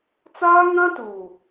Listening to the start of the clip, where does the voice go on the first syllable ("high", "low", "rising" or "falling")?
high